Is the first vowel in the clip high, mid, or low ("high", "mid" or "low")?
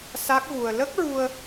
low